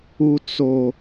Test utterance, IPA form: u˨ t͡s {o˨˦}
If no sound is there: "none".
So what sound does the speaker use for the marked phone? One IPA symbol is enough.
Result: o˨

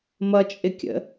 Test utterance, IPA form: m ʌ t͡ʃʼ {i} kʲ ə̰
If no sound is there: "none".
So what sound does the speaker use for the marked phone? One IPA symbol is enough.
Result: ɪ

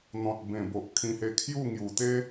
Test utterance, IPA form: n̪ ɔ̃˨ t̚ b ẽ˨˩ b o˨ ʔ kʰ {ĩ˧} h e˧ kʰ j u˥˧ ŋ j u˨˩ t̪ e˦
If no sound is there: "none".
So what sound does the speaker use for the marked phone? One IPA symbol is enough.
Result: ĩ˧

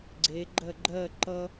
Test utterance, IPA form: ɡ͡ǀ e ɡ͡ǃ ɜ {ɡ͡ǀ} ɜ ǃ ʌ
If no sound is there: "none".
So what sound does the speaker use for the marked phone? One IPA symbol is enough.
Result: ɡ͡ǃ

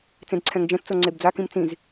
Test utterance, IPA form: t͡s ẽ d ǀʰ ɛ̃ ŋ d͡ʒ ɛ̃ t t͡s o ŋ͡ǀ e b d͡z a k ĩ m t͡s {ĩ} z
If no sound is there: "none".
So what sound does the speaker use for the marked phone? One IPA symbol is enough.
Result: ĩ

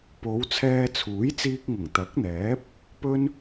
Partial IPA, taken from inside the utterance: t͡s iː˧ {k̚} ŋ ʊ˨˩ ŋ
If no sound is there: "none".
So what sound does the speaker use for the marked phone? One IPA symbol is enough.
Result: k̚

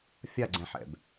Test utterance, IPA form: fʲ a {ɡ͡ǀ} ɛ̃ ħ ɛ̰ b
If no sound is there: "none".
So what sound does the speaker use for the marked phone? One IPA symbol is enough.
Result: ɡ͡ǀ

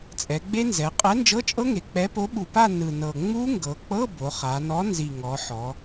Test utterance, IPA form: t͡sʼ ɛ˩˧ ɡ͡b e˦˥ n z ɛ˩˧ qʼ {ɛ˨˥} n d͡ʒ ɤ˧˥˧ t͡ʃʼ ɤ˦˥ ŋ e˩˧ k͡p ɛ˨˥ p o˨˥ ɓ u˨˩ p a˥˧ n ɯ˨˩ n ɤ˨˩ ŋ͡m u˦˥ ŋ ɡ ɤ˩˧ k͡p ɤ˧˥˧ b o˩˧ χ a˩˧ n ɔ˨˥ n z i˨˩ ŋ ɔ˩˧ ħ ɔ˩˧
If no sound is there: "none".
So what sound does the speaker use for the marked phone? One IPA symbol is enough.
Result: ɛ˨˥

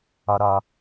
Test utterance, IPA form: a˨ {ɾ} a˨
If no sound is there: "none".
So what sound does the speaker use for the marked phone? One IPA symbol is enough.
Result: ɾ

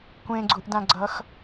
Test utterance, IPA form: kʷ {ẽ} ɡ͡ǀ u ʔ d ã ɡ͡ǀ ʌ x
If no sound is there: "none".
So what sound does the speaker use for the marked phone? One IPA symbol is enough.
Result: ẽ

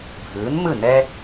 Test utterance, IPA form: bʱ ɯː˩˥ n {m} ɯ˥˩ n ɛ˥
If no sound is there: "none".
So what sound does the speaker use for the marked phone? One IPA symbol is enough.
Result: m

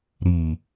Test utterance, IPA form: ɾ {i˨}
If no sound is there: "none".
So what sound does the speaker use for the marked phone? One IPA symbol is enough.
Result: i˨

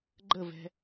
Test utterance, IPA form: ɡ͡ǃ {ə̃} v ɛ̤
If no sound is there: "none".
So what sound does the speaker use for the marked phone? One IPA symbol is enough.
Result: ə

